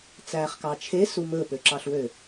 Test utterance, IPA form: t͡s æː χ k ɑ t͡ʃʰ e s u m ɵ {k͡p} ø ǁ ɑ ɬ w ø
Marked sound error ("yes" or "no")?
yes